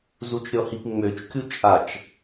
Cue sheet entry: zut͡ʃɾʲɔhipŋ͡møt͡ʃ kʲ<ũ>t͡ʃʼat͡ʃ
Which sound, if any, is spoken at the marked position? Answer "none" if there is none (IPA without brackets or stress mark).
u